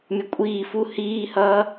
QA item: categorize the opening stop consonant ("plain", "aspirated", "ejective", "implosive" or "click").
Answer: ejective